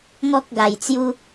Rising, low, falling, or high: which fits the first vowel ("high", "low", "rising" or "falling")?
high